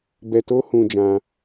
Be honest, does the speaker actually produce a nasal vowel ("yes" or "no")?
yes